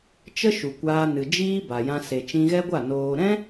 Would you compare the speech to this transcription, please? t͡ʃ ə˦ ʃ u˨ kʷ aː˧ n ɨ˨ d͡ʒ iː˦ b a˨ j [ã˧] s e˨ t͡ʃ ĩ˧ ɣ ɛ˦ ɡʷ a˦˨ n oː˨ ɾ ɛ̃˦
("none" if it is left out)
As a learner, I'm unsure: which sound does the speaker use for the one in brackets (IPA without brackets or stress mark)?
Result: ã˧